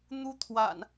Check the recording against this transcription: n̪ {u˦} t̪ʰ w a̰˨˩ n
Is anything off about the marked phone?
no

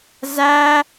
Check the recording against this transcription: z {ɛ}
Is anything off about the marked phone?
yes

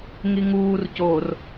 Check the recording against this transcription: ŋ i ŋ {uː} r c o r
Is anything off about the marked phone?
no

